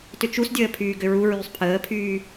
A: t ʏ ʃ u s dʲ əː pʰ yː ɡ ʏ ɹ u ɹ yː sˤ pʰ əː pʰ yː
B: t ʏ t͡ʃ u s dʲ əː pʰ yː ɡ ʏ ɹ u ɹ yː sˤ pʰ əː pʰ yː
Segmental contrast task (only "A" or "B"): B